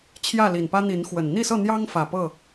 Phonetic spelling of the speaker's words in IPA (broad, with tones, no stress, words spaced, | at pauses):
t͡ɕʰjä˥˨li˨˩npä˦ n̪i˨˦nxwə˨˩n n̪i˥˨sɤ˥˨ n̪jɑ˦ŋfä˨˩ pɤ˥˨